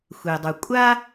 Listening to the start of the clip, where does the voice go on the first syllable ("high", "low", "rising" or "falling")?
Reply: low